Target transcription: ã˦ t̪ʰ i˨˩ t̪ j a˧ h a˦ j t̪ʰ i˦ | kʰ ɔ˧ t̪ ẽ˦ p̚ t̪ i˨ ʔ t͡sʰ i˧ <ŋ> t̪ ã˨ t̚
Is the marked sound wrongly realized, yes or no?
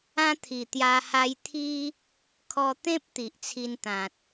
yes